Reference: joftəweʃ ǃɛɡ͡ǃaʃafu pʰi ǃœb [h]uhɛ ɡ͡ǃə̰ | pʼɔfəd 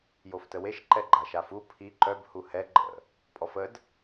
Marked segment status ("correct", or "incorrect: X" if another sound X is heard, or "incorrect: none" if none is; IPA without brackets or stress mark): correct